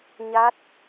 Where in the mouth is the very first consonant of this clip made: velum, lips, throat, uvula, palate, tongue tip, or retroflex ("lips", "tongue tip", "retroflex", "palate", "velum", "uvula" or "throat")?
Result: palate